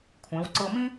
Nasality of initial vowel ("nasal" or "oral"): nasal